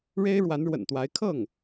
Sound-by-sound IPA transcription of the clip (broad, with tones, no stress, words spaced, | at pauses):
ɻe˥ɪ̯ ɻwa˧˥nɻwə̰˨˩nt̪wa˧˥ɪ̯ kʰɤ˥˩ŋ